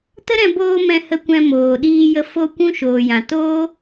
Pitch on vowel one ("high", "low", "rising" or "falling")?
high